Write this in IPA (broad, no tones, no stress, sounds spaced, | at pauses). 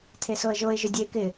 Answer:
tʰ e s o ə̯ ʒ o ɪ̯ ʒ ʊ dʲ ɛ ɪ̯ k ɪ